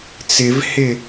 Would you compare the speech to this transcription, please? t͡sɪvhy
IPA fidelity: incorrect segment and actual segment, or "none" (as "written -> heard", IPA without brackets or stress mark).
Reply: y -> ɪ